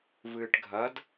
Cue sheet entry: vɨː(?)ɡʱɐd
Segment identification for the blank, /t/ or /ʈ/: ʈ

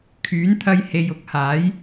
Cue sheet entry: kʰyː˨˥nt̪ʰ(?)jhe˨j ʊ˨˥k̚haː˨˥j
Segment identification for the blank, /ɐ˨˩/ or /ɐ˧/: ɐ˧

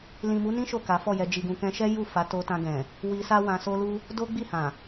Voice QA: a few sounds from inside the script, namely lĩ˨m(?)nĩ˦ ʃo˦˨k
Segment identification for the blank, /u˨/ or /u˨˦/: u˨˦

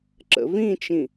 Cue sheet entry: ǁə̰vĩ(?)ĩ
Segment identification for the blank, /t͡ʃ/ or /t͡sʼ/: t͡ʃ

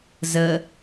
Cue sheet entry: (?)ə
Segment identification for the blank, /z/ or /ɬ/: z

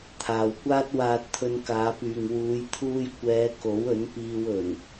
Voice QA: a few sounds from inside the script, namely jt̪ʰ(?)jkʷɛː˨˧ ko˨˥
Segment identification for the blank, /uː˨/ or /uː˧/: uː˧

